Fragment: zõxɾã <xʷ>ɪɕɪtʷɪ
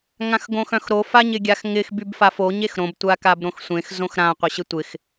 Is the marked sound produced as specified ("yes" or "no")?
no